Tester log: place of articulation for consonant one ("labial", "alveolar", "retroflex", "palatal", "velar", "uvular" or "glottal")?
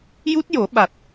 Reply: palatal